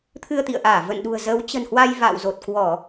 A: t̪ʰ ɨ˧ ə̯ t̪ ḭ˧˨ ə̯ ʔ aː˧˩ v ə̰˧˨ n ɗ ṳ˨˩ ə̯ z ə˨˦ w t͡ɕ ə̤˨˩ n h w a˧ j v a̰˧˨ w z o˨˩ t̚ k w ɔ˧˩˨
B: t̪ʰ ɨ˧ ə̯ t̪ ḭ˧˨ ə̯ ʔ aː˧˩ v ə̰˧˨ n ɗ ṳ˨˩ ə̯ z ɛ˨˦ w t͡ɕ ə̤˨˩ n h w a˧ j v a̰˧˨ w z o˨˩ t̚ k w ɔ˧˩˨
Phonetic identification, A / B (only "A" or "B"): A